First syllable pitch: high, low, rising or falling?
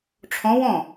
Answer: rising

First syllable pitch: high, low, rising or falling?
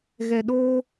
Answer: low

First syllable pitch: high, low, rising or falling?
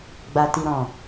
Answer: low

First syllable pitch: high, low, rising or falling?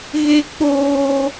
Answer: high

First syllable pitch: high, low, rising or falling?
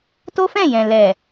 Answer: high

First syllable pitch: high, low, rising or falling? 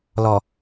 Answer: low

